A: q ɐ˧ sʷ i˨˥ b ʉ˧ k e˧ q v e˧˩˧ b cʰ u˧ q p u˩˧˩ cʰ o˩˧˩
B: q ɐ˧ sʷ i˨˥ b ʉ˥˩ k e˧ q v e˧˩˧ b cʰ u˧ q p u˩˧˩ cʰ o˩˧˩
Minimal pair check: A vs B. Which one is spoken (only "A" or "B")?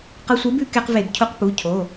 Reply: A